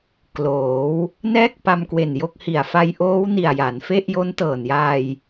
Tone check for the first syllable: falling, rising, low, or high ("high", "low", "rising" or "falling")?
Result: rising